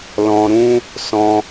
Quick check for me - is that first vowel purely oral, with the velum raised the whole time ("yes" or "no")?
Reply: no